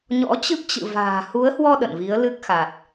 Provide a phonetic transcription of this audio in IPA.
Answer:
ɲ ɔ̰˧˥ t͡ɕ ɨ˦˥ p̚ t͡ɕ ɨ̰˧˨ v a̤ː˨˩ h u˨˦ ə̯ h w ɔ˧ ɗ ə̰˧˨ n v i˨˦ ə̯ l ɨ˦˥ k̚ x a˨˩ t̚

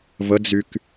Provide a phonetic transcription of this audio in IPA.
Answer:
v ə d͡z y k

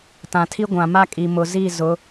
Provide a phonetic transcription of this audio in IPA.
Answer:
t ã˨ tʰ i˦ ɡʷ ã˨ m a˦ kʼ i˨ m ʊ˨ z i˦˨ z ʊ˨˦

